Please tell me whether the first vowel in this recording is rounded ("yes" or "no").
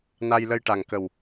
no